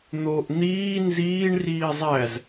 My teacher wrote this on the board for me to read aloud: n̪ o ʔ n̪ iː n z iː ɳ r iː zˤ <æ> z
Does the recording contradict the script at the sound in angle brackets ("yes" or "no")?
no